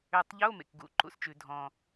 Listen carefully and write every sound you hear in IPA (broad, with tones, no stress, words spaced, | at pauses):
ø˨˩tˤʎo˧˥˧ mḛ˨˩kɡṵ˧˩˧ǃṵ˨˦st͡ʃʉ˧˩˧ dʱɔ̃˨˩